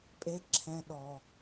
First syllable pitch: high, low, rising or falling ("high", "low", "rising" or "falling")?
high